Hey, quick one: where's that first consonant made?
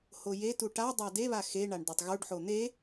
throat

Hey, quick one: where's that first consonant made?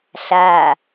tongue tip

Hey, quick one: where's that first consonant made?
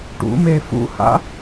retroflex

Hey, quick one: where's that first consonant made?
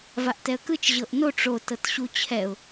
lips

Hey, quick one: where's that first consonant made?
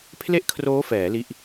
lips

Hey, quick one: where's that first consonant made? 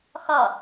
velum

